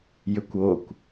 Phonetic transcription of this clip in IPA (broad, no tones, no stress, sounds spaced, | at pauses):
j ʏ kʷ o kʷ